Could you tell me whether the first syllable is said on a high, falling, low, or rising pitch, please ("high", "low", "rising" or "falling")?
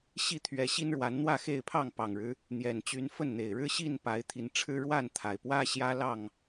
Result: falling